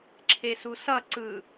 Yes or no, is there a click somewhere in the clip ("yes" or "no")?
yes